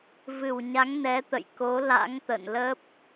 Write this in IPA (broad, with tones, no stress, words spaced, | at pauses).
vɨ˧˩wɲa˨˦ŋ nɛ˨˦t̪ə̰˧˨jko˨˦ la̰˧˥ŋt̪ə̰˧˨nlə˦˥p̚